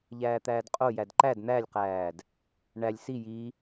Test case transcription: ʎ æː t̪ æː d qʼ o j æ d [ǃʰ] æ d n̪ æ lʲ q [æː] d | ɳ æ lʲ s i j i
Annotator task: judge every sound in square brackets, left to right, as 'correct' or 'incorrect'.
incorrect: ǃ, correct

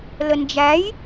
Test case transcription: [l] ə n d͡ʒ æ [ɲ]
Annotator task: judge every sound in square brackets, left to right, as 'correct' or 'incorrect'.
correct, incorrect: j

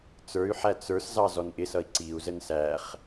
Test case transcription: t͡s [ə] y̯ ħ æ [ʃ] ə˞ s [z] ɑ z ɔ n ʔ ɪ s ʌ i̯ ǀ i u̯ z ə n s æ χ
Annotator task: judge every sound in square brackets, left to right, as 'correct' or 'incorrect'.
incorrect: ə˞, incorrect: t͡s, correct

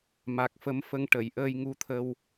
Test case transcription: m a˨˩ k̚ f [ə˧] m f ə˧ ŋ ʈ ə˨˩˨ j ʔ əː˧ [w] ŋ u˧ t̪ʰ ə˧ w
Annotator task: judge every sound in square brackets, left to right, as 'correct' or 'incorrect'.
incorrect: ə˧˥, incorrect: j

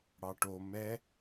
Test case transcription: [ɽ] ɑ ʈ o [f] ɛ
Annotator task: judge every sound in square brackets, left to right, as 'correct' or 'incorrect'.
correct, incorrect: m

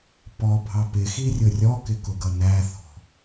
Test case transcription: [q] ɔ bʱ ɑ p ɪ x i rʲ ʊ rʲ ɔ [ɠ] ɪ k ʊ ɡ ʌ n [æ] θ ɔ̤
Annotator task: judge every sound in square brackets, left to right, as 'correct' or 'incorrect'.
incorrect: p, incorrect: k, correct

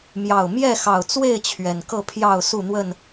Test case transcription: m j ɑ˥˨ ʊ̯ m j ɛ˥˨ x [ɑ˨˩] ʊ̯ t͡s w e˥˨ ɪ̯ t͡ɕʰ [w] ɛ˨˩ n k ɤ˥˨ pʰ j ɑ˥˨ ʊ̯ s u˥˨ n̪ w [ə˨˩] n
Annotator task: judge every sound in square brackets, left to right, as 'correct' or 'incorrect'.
correct, incorrect: ɥ, incorrect: ə˥˨

